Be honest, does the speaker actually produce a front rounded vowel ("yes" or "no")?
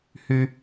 yes